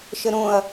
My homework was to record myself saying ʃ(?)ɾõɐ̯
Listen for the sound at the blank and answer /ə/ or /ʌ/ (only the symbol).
ə